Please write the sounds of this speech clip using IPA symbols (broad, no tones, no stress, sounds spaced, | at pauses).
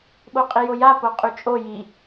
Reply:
ɓ o qʼ i j o j a p o qʼ y t͡ʃʼ o j i